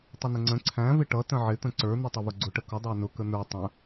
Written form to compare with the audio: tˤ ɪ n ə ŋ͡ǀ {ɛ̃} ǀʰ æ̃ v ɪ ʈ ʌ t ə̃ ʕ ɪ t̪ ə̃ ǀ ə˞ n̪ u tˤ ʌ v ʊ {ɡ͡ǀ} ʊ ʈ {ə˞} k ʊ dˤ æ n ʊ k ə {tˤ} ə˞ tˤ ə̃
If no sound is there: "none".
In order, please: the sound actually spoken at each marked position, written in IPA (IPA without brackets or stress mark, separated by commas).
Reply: ə̃, ɡ͡ǀ, ə, n̪